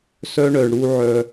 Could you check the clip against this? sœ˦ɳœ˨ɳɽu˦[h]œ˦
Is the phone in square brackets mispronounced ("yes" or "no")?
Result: yes